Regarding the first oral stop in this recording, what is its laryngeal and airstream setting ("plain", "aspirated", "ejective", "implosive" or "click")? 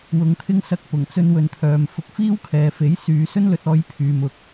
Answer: aspirated